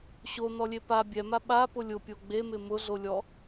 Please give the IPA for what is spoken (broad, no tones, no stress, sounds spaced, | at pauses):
ɕ o n ɔ lʲ e p a bʲ ɛ m a ɓ a p ʊ lʲ ʊ pʲ o ɡ͡b e m ɪ m ʊ ɮ o lʲ ɔ